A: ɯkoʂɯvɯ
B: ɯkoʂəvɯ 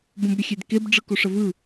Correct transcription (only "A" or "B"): B